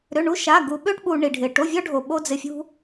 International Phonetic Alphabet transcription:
ɾ ʏ˧˥˧ ɳ u˥ ʃ a˧˥˧ ɡ u˧ ɓ ø˥ ʈ ɓ u˧ ɳ i˧ ɖʱ ɪ˧ ʈ o˧˥˧ vʲ ɔ˥ ɖʱ o˧ ɓ o˥ d͡z ɪ˧˥˧ fʲ ṳ˥

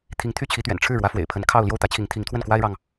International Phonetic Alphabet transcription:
t̪ʰ i˧˥ ŋ t̪ʰ y˥ t͡ɕʰ i˧˥ t̪ ɥ ɛ̰˨˩ n ʈ͡ʂʰ ɻ̩˥˩ ɻ w ä˧˥ f w ḛ˨˩ ɪ̯ pʰ ə˧˥ n kʰ ɑ˥˧ ʊ̯ l j o˥˩ ʊ̯ t̪ ä˧˥ t͡ɕʰ i˧˥ ŋ t̪ʰ i˧˥ ŋ t̪ʰ w ə˥˩ n k w a˥ ɪ̯ ɻ ɑ˨ ŋ

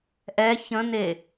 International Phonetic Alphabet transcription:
ʔ ɛ ç ə̃ n̪ e

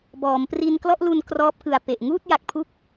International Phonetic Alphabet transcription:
b ɔː˩˦ m p r i˧ n k l ɔ˥˩ ʔ l u˧ n k r ɔː˦˥ p̚ k ɯ˨˩ a̯ p e˨˩ ʔ ŋ uː˥˩ t̚ j a˨˩ k̚ pʰ u˦˥ k̚

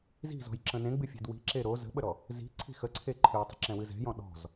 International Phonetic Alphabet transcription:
z i̤ z ɔ̤ j ǁ ə̃ n ẽ ɡ͡b ɨ fʲ e̤ d w i̤ ǁ e ɾ o z ə̤ ɓ ə ɾ ɔ | z i̤ ǀʰ i̤ x ə ǀʰ e ǃʰ ɨ j tˤ i̤ ǁ ɛ̃ w ɨ z ɛ̤ j ɔ̃ ɗ ɔ̤ z

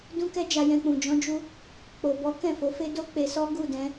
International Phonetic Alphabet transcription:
d ũ˧ k ɛ˧ d͡ʒ a˧ j ɛ̃˧ k͡p ũ˨ d͡ʒ ɔ̃˧ d͡ʒ u˧ | k͡p o˨ b ɔ˨˦ k ɛ̃˦˨ f o˨˦ f e˦ d o˦ k͡p e˧ s ɔ˦ ɡ u˦˨ d ɛ̃˧

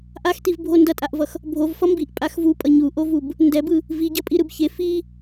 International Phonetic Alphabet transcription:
ʔ a x t i v bʱ o n d ʌ tʼ a ʔ v ʌ x | bʱ o v f ʌ m b i ʔ pʼ a x v u pʼ ʌ ɲ u ʔ o v u b | n d ɛ b ɯ | v i ɟ ʌ pʼ i ɾ ɯ b ç e f i

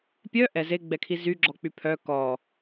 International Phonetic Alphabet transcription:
pʲ œ ʔ ɛ z e ɡ͡b ɛ kʰ i z y ɡ͡ǁ ɔ k͡p y pʰ œ k ɔ

